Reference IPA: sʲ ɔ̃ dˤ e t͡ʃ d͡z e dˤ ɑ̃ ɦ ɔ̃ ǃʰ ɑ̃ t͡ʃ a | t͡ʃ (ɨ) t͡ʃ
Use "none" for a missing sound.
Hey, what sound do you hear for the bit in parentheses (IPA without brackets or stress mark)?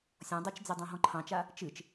ɨ